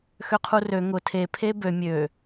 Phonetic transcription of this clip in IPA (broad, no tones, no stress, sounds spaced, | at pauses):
x ø qʰ u r ø ŋ ʊ tʰ e pʰ e b ø mʲ ø